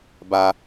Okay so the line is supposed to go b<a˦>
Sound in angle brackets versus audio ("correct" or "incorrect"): correct